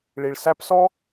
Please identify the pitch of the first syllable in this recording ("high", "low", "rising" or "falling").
low